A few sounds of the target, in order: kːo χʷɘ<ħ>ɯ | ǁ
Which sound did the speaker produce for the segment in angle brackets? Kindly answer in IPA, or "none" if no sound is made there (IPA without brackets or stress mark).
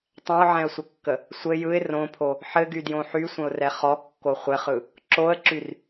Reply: χ